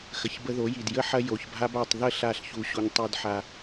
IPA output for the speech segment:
x ə˨ ç b ə˧ ð o˨˦ j i˨ d j ə˧ ħ ɐ˧ j o˨ ç bʱ a˧ b a˨ tˤ ð ə˦˨ ɬ a˦˨ ɬ ç u˧ ɕ u˧ ɲ tˤ u˧ d ħ a˧

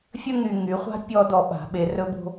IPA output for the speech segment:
fʲ ə˦ ŋ y˨ ŋ y˨˦ χʷ a̤˦ pʲ ɔ˧ d ɔ˨ ɓ a̤˨ ɓ e˧ r ɵ˦ b o̤˦

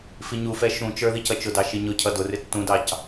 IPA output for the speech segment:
f i ɲ u f ɛ ʃ ũ t͡ʃ ə˞ ð i c ʌ t͡ʃ ʊ d ɑ ʃ i ɲ ʊ cʰ ʌ d ʊ r ɪ tː ũ d ɑ c

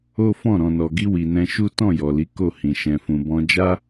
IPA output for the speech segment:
o˦ f ɔ̃˦˨ ɾ ɔ̃˨ n ɔ˨ ɡ i˧ w i˨ n ɛ̃˧ ʃ u˦ t ɔ̃˦˨ j ɔ˨ l i˨˦ k o˦˨ h ĩ˨ ʃ ɛ̃˨ f ũ˨ b ɔ̃˧ d͡ʒ a˦

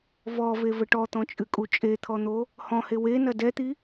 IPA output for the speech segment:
v ɔ v e v ɘ ʈ ɔ t̪ ɔ̃ t͡ʃʼ ɨ kʼ u t͡ʃʼ e t̪ʰ ɔ n̪ o | h ɔ̃ h e w e n ɐ d ɛ t̪ i

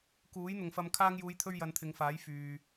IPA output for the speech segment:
k uː˨˥ j n̪ ʊ˨ ŋ f ɐ˧ m kʰ aː˧ ŋ j uː˨˧ j t̪ʰ ɵ˧ ɥ j ɐ˨˧ n t̪ʰ ɪ˨˧ ŋ f aː˨˥ j f yː˨

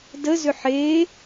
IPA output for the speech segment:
d ə z ʏ ħ e

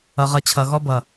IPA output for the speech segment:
ʌ˧ ʁ ʌ˧ t͡ɕʰ ʌ˨ ɣ ɔ˧ b ʌ˨

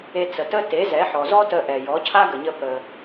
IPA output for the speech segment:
e˧ t͡s ə˩ t ə˥ t e˩˥ z ɛ˩˥ ħ ɔ˩ z ɔ˥ t ə˧ ʔ ɛ˩ j ɔ˩˥ cʰ a˥ ɡ ə˩ ɲ ə˧ p ə˩

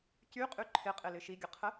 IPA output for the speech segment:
c y qʼ y ǃʰ ɪ qʼ ɪ l ɪ ʃ i ɡʲ ə qʰ ə

